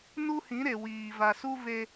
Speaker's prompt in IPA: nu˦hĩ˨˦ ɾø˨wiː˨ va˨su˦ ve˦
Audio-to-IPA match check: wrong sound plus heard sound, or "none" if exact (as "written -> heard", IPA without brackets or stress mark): ø˨ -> e˨